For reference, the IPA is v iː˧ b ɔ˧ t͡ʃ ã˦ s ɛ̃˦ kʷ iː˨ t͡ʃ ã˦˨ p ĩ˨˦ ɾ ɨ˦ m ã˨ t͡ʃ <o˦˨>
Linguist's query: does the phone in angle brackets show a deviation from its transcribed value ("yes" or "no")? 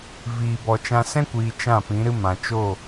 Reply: no